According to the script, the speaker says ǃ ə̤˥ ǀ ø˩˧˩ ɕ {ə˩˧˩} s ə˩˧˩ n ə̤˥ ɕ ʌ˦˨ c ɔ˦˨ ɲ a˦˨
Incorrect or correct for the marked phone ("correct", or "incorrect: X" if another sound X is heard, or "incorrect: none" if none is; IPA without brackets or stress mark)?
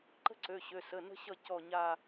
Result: incorrect: ø˩˧˩